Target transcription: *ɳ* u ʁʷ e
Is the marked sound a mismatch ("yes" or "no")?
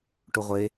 yes